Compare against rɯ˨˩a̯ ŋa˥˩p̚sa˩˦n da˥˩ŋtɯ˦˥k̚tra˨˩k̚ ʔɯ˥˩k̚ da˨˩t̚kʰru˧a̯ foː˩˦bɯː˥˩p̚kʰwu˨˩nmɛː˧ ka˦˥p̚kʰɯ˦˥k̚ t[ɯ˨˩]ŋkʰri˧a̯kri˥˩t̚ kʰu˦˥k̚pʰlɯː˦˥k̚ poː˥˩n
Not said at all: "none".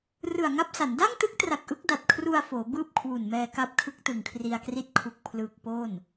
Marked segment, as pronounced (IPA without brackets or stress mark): ɯ˨˩